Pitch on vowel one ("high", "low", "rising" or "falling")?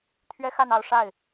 high